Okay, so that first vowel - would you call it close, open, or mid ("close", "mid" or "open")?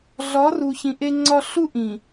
open